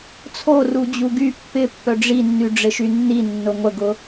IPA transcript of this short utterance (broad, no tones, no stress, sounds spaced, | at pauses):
t͡sʰ o r u d͡ʑ u ɡ y pː ɪ pː œ ɖ͡ʐ i nː y ɖ͡ʐ ɪ ʃ y nː i nː ʊ ŋʷ ə ɡ ʊ